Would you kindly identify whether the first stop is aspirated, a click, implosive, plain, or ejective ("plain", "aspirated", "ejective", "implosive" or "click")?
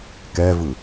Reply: plain